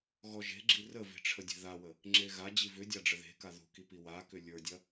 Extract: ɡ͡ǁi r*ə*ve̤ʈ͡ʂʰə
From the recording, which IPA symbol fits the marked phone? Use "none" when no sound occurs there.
ə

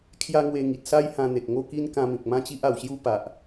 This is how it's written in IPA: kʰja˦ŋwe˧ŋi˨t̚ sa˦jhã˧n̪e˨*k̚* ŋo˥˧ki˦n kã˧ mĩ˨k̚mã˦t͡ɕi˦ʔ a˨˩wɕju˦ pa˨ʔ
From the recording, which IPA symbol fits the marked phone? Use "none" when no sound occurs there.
k̚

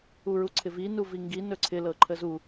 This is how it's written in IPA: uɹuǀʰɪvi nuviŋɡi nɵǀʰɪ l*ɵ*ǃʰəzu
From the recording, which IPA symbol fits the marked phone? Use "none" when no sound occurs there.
ɤ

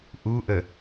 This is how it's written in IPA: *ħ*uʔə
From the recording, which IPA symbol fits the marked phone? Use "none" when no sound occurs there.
ʔ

